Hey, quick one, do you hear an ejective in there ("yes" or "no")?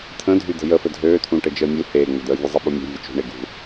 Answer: no